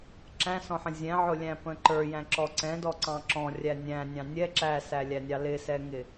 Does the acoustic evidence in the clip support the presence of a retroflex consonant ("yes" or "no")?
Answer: no